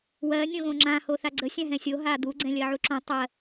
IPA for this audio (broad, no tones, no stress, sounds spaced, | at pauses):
w ɜ nʲ õ ɣ õ ŋ͡ǁ ã h o θ a ɡ͡ǀ ə sʲ ã ɦ ɛ̃ sʲ o ɦ a d̪ u ɡ͡ǀ ɛ̃ lʲ ɜ ʕ u ǁ õ tˤ ɜ